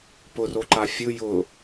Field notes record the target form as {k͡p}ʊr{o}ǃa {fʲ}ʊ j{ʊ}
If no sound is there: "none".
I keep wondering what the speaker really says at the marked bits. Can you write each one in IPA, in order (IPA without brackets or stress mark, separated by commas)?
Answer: p, o, fʲ, ʊ